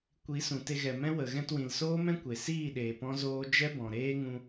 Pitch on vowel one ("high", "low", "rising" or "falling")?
rising